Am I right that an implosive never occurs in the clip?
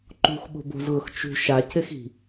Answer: no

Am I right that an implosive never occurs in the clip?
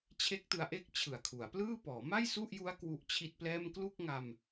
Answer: yes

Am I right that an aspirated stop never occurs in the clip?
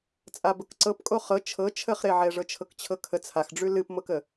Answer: no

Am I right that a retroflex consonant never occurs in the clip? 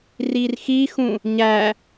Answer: yes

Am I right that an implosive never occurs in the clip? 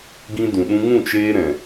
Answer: no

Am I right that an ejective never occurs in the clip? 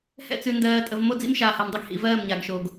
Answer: no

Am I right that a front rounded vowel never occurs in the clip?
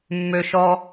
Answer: no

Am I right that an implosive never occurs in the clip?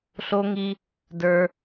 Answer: yes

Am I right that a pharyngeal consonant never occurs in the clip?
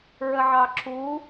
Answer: no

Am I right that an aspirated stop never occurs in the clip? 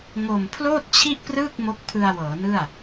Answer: no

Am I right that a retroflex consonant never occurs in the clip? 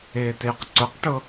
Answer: no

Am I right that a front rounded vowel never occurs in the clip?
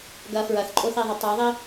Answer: no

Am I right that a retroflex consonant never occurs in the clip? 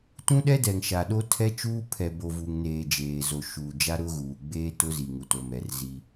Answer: yes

